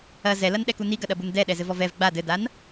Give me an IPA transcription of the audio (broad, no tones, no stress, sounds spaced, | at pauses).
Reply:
ɐ z ɛ l ɐ n ɗ ɛ k u n i ɡ ɐ ɗ ɐ b u n d ɛ ɗ ɛ z ɘ v ɔ v ɛ v ɡ͡b a d ɘ d a n